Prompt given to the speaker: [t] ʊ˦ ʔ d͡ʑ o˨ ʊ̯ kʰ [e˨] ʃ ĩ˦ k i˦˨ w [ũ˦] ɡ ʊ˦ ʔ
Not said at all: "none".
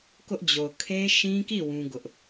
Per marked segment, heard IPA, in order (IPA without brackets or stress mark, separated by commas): k, e˦, ũ˦